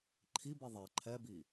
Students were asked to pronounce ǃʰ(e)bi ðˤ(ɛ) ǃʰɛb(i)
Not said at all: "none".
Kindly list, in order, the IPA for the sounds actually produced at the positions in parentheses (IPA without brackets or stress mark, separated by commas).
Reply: i, ɛ, i